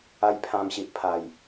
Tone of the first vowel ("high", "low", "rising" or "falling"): high